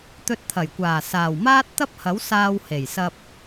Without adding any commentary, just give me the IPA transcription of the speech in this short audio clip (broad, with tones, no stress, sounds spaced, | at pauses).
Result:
t̪ ɵ˧ t̚ t̪ʰ ɐ˨˩ j kʷ aː˨˩ s aː˨˩ w m aː˥ t̚ t̪ ɐ˥ p̚ h ɐ˨˥ w s aː˧ w h e˨˩ j s ɐ˧ p̚